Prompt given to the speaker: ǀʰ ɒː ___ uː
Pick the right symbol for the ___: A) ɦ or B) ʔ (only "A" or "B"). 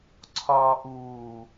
B